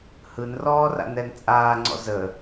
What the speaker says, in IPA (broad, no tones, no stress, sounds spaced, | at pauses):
h ɯ n r ɔː r a̰ n ɛ n t͡sʼ aː ŋ͡ǀ ɔ̰ z ə